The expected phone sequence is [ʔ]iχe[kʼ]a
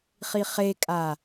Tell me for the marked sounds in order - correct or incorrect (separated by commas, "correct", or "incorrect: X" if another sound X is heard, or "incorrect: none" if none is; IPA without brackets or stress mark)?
incorrect: χ, correct